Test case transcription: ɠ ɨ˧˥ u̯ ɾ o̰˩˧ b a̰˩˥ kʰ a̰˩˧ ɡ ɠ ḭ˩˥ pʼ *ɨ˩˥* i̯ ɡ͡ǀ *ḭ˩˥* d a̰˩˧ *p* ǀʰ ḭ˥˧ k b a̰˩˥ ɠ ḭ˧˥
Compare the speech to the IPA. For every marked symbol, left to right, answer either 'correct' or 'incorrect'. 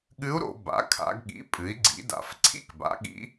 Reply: correct, correct, incorrect

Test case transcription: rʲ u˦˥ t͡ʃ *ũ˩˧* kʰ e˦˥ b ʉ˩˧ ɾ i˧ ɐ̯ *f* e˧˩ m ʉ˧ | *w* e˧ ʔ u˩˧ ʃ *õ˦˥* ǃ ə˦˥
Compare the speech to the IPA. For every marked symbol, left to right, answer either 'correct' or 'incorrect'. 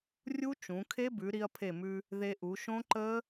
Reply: correct, incorrect, incorrect, correct

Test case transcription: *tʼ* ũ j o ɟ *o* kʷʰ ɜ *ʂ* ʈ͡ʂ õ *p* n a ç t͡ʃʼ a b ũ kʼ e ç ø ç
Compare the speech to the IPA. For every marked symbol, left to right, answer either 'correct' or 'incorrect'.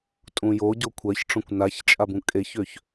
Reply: correct, correct, incorrect, incorrect

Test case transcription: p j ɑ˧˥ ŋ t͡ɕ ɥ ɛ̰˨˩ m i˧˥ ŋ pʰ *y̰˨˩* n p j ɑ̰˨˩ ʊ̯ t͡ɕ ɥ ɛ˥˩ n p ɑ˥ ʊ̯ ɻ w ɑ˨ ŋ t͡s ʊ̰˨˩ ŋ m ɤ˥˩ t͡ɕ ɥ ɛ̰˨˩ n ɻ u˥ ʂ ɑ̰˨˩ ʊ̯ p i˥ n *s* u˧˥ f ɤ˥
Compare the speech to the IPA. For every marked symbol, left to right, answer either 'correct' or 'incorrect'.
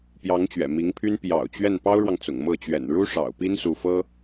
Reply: incorrect, correct

